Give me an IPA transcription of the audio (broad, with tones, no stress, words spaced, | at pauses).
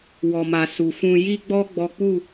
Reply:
wɔ˨ma˨ su˨fũ˧ ji˦ɡ͡bɔ˦ ɡ͡bɔ˦ k͡pu˦˨